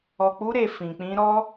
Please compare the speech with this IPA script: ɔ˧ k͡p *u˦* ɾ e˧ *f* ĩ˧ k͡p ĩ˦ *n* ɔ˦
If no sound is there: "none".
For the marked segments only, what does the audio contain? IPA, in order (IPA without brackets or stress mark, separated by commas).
u˦, f, ɾ